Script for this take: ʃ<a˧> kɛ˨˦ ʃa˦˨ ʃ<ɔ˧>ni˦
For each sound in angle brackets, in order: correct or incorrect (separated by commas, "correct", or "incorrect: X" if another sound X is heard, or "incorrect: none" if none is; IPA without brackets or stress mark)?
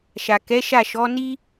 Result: incorrect: a˨, incorrect: ɔ˨˦